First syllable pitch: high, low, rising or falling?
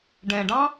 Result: low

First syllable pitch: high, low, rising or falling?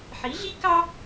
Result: rising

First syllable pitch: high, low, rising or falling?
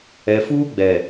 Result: low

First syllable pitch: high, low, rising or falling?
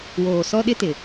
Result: low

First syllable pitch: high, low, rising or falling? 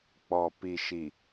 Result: low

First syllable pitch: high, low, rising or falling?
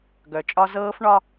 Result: low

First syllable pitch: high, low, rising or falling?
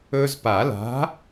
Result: high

